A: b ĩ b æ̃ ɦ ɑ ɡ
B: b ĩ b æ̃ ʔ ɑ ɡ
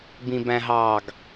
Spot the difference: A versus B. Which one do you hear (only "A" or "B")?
A